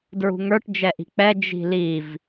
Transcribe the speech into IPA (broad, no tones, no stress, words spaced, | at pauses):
dɹṳŋə˞ʈ d͡ʒɛʔi̤k͡pɛ d͡ʒi̤liv